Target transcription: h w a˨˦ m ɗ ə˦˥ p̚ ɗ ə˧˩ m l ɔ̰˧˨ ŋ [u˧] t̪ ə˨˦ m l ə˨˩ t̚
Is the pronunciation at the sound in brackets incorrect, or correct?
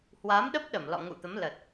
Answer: incorrect